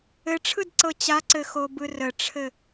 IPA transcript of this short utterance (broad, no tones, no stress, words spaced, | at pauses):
ɘʈ͡ʂʰɯd ǀɤt͡ɕaǀɘ xobɯrəʈ͡ʂʰɘ